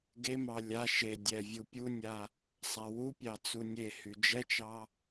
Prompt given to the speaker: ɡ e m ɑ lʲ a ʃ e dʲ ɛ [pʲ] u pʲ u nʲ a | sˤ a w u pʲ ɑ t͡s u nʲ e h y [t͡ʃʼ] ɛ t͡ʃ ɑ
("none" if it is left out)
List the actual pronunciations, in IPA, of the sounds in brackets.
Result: vʲ, d͡ʒ

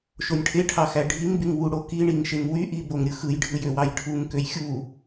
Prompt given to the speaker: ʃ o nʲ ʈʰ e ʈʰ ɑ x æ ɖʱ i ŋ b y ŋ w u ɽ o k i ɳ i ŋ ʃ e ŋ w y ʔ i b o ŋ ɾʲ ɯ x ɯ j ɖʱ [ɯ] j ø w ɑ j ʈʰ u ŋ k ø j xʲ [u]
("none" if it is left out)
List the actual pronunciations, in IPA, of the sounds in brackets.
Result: ɯ, u

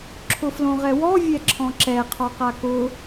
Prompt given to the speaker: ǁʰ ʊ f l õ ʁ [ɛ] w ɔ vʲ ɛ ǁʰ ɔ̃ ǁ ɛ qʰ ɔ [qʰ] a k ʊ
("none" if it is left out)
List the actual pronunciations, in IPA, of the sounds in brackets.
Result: ɛ, q

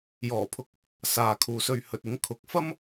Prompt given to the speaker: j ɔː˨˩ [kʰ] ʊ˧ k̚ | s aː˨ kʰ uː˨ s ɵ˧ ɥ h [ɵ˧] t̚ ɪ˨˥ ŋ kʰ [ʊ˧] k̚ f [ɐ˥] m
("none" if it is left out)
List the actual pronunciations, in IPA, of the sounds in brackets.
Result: pʰ, ɵ˨, ʊ˨˥, ɐ˥

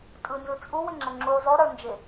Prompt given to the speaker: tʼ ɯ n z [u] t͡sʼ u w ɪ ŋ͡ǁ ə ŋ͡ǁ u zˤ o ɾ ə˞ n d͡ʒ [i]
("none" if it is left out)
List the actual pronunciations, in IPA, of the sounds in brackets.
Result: ɯ, ɪ

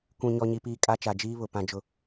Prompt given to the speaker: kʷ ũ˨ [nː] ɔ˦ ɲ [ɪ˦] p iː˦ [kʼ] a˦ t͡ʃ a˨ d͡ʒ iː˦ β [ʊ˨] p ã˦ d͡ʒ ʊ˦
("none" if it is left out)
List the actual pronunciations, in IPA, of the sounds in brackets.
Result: ɲ, i˦, kʼ, ʊ˨

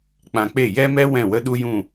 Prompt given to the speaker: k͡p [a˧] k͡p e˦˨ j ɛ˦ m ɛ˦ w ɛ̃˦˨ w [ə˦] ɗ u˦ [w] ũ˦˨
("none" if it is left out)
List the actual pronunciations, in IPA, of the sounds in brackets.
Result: ã˧, ə˦, j

